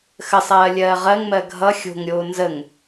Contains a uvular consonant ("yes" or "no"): yes